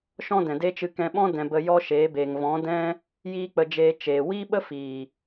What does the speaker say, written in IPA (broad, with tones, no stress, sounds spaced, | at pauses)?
ʃ ɔ̃˦ d ɛ̃˨ d e˦ t͡ʃ ɨ˧ k ɛ̃˧ ɓ ɔ̃˦ d ɛ̃˧ b ə˧ j ɔ˦ ʃ eː˨˦ b eː˨ ŋ v ɔ̃˨˦ d ɛ̃˦ | j iː˦ k͡p ə˧ d͡ʒ eː˧ t͡ʃ eː˨ w iː˦ ɓ ə˦ f iː˨